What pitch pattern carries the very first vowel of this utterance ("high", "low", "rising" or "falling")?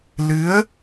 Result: rising